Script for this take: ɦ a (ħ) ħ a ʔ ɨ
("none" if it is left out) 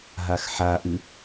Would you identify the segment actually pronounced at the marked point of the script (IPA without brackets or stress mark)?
x